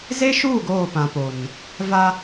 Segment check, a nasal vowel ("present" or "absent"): present